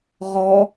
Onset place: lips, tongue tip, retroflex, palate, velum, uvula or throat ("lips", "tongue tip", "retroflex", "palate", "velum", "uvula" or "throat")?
uvula